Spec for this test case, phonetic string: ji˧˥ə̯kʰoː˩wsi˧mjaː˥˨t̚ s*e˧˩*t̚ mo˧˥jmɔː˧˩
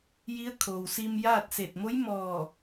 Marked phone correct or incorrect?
correct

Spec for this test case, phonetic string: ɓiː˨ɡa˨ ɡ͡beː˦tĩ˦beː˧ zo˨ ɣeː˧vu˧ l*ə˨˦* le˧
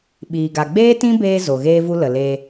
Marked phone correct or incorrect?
incorrect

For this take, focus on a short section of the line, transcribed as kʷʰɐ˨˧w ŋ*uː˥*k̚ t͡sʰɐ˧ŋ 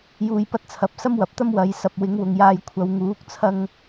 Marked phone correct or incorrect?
incorrect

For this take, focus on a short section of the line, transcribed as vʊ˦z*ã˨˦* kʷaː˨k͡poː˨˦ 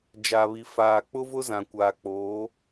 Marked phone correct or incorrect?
incorrect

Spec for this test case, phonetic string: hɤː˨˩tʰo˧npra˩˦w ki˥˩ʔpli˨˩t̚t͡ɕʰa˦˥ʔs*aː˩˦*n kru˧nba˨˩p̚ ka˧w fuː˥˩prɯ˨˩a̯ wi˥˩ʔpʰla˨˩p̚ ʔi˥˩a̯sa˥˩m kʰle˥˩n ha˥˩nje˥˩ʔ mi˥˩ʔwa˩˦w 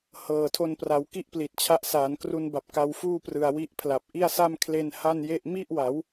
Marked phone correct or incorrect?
correct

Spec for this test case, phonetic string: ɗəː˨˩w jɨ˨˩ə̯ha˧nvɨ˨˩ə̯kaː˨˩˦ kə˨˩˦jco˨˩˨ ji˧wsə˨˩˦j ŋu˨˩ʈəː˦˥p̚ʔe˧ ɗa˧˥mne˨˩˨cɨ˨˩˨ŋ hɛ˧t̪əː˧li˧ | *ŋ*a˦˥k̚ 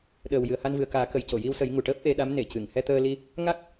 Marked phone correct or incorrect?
correct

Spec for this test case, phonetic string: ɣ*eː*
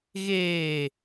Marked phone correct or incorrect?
correct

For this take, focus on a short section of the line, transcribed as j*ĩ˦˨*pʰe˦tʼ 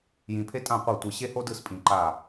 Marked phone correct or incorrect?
incorrect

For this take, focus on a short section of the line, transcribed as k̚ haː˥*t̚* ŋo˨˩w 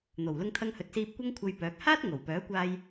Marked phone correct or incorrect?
correct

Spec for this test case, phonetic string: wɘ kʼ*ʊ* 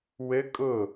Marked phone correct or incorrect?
correct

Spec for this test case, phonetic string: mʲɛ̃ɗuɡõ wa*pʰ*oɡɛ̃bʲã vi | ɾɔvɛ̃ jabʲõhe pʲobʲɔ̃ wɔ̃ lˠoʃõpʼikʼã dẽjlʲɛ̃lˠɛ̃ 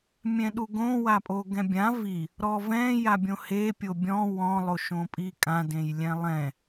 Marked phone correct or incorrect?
incorrect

